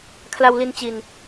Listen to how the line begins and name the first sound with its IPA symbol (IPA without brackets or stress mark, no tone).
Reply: kʰ